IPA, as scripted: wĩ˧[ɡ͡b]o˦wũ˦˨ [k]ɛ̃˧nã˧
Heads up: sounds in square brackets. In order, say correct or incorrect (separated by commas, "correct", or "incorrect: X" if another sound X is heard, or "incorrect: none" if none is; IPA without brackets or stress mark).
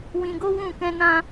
incorrect: ɡ, correct